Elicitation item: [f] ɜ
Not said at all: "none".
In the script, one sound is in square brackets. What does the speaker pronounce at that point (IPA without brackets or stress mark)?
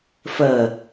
f